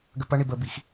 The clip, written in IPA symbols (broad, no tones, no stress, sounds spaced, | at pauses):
ɡ ə p ɐ ɳ i b ə b i x